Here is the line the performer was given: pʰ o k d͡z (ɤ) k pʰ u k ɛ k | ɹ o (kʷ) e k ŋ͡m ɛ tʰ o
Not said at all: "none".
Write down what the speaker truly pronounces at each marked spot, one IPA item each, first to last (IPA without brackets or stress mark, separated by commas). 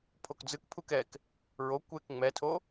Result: ɯ, kʷ